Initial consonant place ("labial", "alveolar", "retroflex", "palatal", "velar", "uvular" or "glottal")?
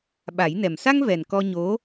labial